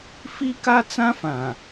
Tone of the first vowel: high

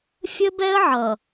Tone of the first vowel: high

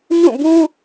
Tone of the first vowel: falling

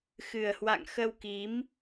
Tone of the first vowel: low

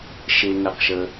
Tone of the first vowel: low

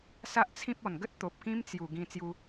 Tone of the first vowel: high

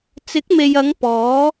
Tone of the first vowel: rising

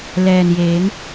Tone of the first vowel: low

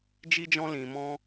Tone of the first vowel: high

